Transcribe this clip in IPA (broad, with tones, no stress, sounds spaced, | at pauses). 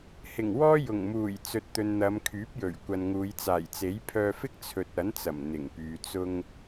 h ɪ˨˩ ŋ w ɔː˥ j ʊ˨˩ ŋ m uː˨˩ j t͡s ɵ˨ t̚ t̪ ɵ˨ n n̪ ɐ˨˧ m kʰ yː˨˥ p̚ j ɵ˨˩ ɥ kʷ ɐ˨ n ŋ uː˨˧ j t͡s aː˨˩ j t͡s e˨˥ j pʰ œː˧ f ɪ˥ k̚ t͡sʰ ɵ˨ t̚ ɐ˨˥ n t͡s ɐ˨˩ m n̪ ɪ˨˩ ŋ p yː˨ t͡s ʊ˥ ŋ